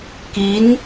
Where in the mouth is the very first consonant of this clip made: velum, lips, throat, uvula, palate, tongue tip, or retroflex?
velum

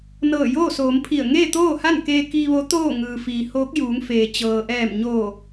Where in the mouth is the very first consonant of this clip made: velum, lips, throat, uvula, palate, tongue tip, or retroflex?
tongue tip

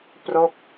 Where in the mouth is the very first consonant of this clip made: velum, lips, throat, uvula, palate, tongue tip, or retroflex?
lips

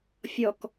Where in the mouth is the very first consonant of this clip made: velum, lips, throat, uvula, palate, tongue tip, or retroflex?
lips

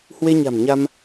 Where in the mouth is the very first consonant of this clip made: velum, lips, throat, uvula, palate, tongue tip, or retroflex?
throat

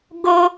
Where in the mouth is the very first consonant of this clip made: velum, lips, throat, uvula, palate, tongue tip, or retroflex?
velum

